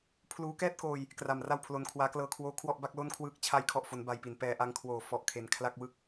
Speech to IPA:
pʰ l uː˦˥ k ɛː˥˩ t̚ k oː˧ j | k r a˨˩ m r a˥˩ w pʰ l o˧ n kʰ w aː˦˥ k l ɤː˧ kʰ w oː˦˥ kʰ w ɔ˥˩ ʔ b a˥˩ k̚ l o˥˩ n kʰ w ɯː˥˩ k̚ t͡ɕʰ a˦˥ j kʰ ɔ˨˩ ʔ f o˩˦ n b a˧ j p i˩˦ n p ɛː˧ ʔ a˦˥ ŋ kʰ w oː˨˩ f ɔ˨˩ ʔ kʰ e˩˦ n kʰ l a˥˩ k̚ w ɯ˦˥ k̚

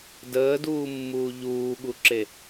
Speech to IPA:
d əː d uː mː uː ʎ uː ɠ u ǁ e

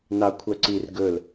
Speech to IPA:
n ɑ kʷʰ œ ǀ i r ɡ ɵ l

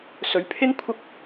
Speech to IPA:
s ɵ˨˧ ɥ pʰ ɪ˥ ŋ kʷʰ ɐ˥ k̚

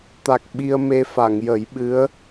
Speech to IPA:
t̪ a˨˩ k̚ ɓ i˧ ə̯ m e˧ f a˨˩˨ ŋ j ə˨˩˦ j ɓ ɨ˧˥ ə̯

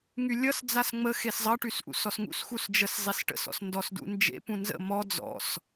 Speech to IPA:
ŋ y lʲ ʌ s d͡z a s ŋ͡m ə x e s zˤ ʌ ʈ y s ʔ ṵ s ɔ s ŋ ṵ s x u s d͡ʒ ə s zˤ e s ʈ ə̰ s ɔ̰ s n d ɔ s d ṵ n d͡ʒ ḛ p ũ n z ə̰ m ɔ d͡z ɔ̰ s

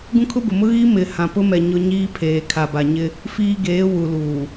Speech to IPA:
ɡ ũ˦ kʰ ʊ˦ b ʊ˨ m ʊ˦ ɣ i˦ m ɪ˨ h ã˨ p ʊ˦ m ɛ˨ ɲ ʊ˦ ɲ iː˦ pʰ eː˨ kʰ a˨ b a˨ ɲ ɪ˦ | f iː˦ ɡ eː˨˦ w u˨ l uː˨

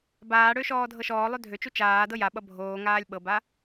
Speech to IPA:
b aː ɽ ø ʃ ɔː dʱ ɤ ʃ ɔː lˠ ø dʱ ø t͡ʃ u t͡ʃ aː d ɤ j a ɓ ʌ bʱ oː ŋ aː lʲ ɓ ɤ b a

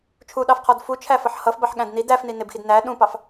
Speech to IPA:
t͡ʃʰ u ɗ ɑ f qʰ ɔ d f u t͡ʃʰ æ f ʌ ħ h ʌ f b ɑ ħ ɠ æ̃ d n i d æ f n i n ɪ b x i d n æ ɗ ũ p ɑ f

